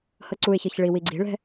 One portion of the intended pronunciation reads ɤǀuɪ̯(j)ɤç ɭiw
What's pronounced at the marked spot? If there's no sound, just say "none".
ç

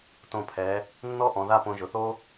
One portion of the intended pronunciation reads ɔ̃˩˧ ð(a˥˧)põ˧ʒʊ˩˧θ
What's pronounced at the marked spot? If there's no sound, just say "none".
a˥˧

